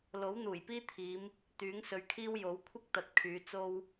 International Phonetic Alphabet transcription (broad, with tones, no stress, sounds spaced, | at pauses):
l o˨˥ w n̪ uː˨˩ j p iː˥ t̪ʰ iː˨˧ m | t̪ yː˨˥ ŋ s ɵ˨ ɥ kʰ iː˥ w j o˨˥ w kʷʰ ɪ˥ k̚ t̪ ɐ˨ t̚ kʰ yː˨˧ t͡s o˥ w